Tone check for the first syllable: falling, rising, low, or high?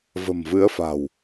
low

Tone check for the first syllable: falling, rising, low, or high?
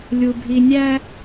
low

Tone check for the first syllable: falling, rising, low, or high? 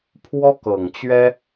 high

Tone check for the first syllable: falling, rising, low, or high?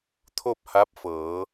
falling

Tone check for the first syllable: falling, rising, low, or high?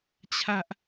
high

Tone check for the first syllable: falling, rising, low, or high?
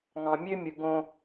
low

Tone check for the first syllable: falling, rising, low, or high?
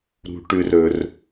high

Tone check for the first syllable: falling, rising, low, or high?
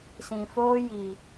low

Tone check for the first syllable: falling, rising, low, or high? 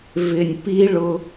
low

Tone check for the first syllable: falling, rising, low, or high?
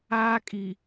high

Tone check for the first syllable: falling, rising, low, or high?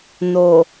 low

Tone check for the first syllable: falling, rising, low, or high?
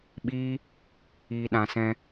high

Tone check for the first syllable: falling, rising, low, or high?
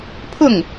falling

